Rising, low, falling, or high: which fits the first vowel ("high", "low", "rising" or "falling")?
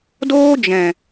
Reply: high